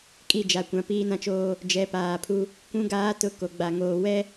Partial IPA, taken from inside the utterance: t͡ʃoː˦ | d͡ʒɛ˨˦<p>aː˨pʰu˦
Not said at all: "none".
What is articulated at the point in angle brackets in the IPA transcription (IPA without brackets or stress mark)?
p